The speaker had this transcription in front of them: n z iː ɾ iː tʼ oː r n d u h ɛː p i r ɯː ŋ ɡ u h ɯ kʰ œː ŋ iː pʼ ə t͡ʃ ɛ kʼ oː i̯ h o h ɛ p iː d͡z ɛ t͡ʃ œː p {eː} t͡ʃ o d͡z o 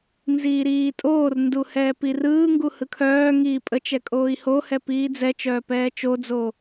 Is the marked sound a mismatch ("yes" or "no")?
yes